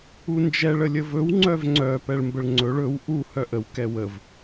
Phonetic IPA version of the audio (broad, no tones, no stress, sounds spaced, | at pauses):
u n d͡ʒ ɛ ɭ ə lʲ ə v ɵ w ŋ͡ǀ œ v ŋ͡ǀ œ p ɛ ɭ m b ə ɭ ŋ͡ǀ ɵ ɭ ɵ w ʔ u h œ ʔ ə w k ɛ w ə v